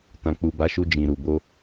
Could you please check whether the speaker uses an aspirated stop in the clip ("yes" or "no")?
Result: no